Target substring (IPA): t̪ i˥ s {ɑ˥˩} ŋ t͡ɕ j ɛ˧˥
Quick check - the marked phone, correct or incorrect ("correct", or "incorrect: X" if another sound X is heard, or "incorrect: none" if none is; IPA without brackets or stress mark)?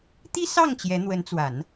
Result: correct